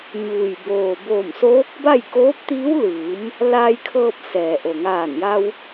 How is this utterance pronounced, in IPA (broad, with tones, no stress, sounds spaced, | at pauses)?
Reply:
ɲ uː˩ j b oː˩ b oː˧˩ m s oː˧˥ k̚ b a˥˨ j k oː˧˥ p̚ t̪ iː˧˥ w l ɯː˩˧ m | l aː˧ j kʰ ɤː˧ p̚ s ɛː˩ ʔ o˩ ŋ aː˧˩ n j a˧ w